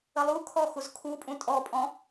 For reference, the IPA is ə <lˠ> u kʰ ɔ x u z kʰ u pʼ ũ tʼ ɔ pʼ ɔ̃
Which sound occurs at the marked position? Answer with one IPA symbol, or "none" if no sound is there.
lˠ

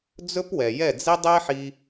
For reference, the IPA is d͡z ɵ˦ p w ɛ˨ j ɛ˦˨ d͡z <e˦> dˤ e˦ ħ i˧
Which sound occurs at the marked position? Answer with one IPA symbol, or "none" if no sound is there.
i˦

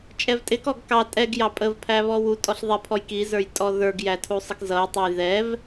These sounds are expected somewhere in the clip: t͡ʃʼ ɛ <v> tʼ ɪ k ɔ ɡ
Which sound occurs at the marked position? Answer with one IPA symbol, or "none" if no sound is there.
v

